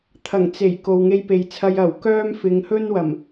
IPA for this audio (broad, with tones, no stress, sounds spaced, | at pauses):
t̪ʰ ɐ˨˩ ŋ t͡s e˨˩ j k o˨ w ŋ e˧ j p e˨ j t͡sʰ ɐ˧ j ɐ˨˩ w k œː˥ m f ɪ˨˧ ŋ h ɵ˥ n w ɐ˨˩ m